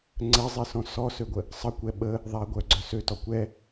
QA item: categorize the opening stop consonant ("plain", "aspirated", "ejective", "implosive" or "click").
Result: click